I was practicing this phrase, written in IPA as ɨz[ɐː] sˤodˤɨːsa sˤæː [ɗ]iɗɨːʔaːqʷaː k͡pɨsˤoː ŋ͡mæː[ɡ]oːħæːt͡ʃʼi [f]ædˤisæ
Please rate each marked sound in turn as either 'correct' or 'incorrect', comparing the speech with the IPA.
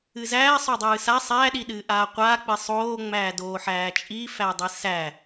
incorrect, correct, incorrect, correct

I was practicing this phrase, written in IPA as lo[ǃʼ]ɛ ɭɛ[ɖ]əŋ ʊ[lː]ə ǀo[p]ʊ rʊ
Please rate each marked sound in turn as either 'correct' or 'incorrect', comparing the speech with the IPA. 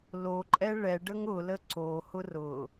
correct, correct, incorrect, incorrect

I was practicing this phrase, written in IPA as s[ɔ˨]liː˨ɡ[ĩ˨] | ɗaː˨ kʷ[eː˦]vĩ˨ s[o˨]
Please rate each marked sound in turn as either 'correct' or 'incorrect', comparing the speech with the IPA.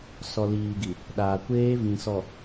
correct, incorrect, correct, incorrect

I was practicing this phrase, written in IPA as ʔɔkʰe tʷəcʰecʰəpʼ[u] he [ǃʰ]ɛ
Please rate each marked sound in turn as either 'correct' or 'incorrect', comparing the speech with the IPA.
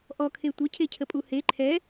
correct, correct

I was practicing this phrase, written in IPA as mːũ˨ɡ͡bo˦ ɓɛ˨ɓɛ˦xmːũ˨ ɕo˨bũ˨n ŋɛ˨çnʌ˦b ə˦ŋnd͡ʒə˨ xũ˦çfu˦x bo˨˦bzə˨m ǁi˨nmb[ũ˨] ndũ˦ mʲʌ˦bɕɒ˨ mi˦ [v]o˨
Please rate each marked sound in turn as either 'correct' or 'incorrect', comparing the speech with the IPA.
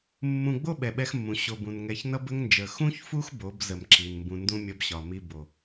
incorrect, incorrect

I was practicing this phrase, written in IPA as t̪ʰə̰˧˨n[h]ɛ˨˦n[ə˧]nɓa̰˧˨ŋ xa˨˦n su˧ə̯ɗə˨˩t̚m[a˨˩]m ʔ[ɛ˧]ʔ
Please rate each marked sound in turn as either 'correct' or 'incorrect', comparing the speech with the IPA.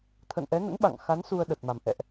incorrect, incorrect, correct, incorrect

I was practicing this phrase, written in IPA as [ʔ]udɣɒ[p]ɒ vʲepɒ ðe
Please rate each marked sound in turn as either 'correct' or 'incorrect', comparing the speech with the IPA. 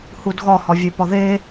incorrect, incorrect

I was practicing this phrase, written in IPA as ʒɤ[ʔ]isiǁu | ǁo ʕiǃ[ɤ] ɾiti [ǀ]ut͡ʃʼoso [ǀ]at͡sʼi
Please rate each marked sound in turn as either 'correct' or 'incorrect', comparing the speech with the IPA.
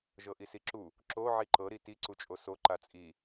correct, correct, correct, incorrect

